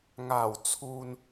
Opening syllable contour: low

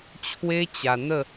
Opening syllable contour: high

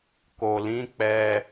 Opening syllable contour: low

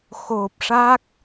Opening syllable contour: low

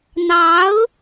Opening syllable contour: rising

